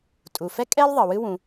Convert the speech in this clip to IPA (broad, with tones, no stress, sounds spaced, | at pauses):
tʼ u˩ f ɛ˥ kʼ ɛ˥ l ðˤ ə˩ w ɨ˥ w ũ˩